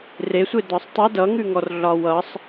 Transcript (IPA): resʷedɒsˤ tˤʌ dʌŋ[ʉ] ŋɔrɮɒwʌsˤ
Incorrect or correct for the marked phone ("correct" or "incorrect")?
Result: correct